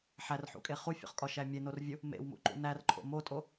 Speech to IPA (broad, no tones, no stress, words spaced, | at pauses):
ħærħṵkʼe χufʲo̰χkʼɒʃæ mʲenorvʲu | mḛwmṵǃṵ nærǃʰo̰ motʼo